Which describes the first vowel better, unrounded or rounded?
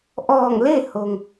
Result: rounded